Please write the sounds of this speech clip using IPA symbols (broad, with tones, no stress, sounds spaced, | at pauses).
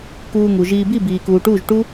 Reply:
k uː˧ ŋ u˨ ʒ iː˧ b i˦˨ b iː˨ k uː˨ ʈ uː˦˨ ʒ ʈ u˦